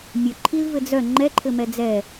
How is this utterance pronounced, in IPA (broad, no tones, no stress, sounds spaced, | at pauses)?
mʲ œ ǃʰ i l v ɘ d͡z œ ŋ͡ǃ ɛ ǃʰ ɘ m ɛ d͡z ɛ